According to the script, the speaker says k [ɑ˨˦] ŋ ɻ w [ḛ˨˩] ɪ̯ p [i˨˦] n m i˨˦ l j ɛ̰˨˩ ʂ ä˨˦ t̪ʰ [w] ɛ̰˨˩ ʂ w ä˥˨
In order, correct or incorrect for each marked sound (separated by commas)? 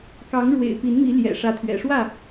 correct, correct, correct, incorrect